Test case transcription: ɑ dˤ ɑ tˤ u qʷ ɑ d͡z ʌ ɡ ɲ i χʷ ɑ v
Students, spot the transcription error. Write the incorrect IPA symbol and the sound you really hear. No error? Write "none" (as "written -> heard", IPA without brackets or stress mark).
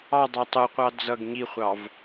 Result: none